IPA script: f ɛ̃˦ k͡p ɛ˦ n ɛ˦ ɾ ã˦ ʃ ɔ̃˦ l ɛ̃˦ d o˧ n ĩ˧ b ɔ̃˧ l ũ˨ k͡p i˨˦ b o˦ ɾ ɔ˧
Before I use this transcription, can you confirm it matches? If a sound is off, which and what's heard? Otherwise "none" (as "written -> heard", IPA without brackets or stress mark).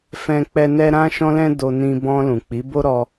none